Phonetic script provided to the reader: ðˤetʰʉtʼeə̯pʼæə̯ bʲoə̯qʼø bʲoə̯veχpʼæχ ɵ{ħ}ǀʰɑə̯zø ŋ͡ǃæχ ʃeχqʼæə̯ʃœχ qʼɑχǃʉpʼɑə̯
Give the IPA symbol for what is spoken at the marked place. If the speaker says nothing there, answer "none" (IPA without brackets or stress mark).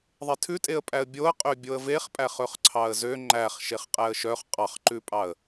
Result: χ